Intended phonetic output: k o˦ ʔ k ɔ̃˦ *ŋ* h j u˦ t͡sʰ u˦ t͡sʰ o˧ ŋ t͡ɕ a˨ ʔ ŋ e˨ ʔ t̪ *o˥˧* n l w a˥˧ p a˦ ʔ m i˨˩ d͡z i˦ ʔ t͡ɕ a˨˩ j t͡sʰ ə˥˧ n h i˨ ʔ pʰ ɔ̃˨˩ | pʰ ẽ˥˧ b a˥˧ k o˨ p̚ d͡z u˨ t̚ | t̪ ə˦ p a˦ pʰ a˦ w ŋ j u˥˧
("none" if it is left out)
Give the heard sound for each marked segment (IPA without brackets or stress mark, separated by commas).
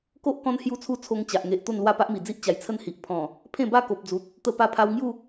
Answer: n, o˥˧